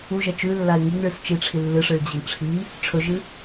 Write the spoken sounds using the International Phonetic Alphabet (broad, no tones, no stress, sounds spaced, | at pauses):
u ʒ ɐ t͡ʃ ʉ lː a ɪ̯ ŋ i ŋ ɭ ɨ s t͡ʃ i ʈ͡ʂʰ i lː ɨ ʂ ɨ ɭ d͡ʑ ɐ ŋ ʈ͡ʂʰ i | ʈ͡ʂʰ ɵ ʒ ɨ